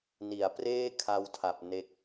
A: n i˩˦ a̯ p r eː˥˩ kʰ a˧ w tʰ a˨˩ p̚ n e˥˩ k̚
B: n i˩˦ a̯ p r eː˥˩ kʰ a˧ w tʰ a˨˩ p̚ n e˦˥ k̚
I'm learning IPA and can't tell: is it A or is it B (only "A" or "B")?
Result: B